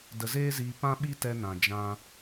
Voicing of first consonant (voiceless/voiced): voiced